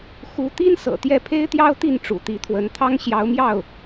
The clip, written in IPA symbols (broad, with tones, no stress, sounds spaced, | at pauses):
x u˧˥ t̪ i˥ n s ɤ̰˨˩ t̪ j ɛ˥˩ pʰ e˥ ɪ̯ t̪ j ɑ˥ ʊ̯ t̪ i˥˩ n ʈ͡ʂ ṵ˨˩ t̪ i˧˥ t̪ʰ w ə˧˥ n t̪ʰ ɑ˥ ŋ ɕ j ɑ˧˥ ʊ̯ m j ɑ˥˩ ʊ̯